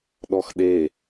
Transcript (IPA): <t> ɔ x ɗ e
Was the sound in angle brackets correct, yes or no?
no